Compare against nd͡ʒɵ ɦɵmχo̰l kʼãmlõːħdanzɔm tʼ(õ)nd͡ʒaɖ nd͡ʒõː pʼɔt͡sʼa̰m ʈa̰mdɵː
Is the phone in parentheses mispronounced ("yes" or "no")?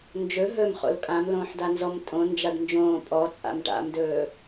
no